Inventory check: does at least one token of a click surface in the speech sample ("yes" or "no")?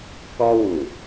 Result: no